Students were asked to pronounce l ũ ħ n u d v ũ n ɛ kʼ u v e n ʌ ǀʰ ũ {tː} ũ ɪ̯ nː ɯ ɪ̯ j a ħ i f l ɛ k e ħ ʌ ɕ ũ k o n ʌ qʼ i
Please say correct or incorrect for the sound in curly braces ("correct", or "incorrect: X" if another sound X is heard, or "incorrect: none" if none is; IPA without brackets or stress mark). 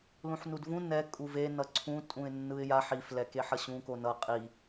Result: incorrect: tʼ